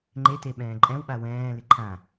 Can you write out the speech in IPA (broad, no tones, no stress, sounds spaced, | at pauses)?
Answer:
ŋ͡ǃ e t e ɓ ɛ̃ː ǃʼ ɛ̃ w ɓ a w ɛ̃ː l ɪ ǃʰ ã